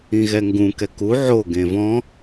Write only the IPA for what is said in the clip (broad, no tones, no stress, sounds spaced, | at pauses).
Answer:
ĩ ɣ ɛ ŋ ɡ ũ k ɛ k u ʕ o ɡ ẽ v ɔ̃